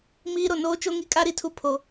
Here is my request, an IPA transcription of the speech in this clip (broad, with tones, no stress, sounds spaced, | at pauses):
m iː˦ ɾ o˨ n oː˦ t͡ʃ o˦ ŋ i˦ kʼ a˦ ɾ i˨ tʰ u˦ pʰ o˨